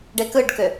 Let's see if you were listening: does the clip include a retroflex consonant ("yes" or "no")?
yes